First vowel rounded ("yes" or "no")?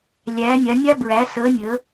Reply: no